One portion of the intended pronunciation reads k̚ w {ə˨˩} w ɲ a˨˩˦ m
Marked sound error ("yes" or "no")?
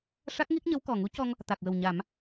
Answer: no